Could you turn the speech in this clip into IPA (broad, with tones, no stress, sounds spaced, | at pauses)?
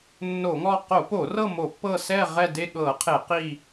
nː o˧˩˧ ŋ ɔ˦˨ q o˧˩˧ p o˧˩˧ r ɤ˦˨ m o˧˩˧ pː ɤ˦˨ s ɛ˦˨ ʁ ɛ˦˨ d e˦˨ ɠ ɤ˧˩˧ qʰ e˧˩˧ q i˦˨